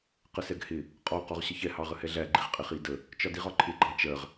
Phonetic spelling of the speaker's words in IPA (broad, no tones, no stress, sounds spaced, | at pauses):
q ə s ɛ ɡ h ɪ | qʼ ɔ q ɔ ʁ ɕ ə ç ɛ h ɑ ʁ ə h ɛ ɮ æ ɡ͡ǃ i ʁ qʼ ɪ χ i d ə | t͡ʃ ɒ d i ʁ ɒ ǃʰ ɪ ɡ͡ǃ ɑ t͡ʃ ɜ ʁ